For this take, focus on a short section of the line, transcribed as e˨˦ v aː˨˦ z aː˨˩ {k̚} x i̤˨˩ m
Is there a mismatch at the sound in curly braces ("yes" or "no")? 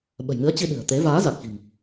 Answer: no